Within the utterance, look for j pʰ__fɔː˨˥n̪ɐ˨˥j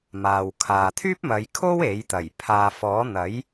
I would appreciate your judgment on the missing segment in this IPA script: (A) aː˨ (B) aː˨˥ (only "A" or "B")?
A